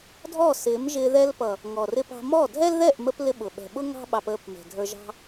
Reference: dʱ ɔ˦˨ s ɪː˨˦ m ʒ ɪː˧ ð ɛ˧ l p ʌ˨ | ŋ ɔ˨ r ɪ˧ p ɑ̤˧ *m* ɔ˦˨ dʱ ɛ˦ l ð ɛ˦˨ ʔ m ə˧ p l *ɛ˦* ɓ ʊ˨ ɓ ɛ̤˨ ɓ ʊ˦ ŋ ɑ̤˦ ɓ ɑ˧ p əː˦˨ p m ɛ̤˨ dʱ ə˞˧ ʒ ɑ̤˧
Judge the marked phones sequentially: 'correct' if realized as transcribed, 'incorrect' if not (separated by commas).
correct, incorrect